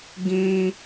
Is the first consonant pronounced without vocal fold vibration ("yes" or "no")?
no